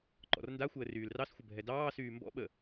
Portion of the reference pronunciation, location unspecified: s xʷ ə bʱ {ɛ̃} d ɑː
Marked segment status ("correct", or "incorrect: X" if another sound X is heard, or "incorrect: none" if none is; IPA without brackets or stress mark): incorrect: ɛ